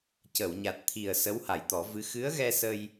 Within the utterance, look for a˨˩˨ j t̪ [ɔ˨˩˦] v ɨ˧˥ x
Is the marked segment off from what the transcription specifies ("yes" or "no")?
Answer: no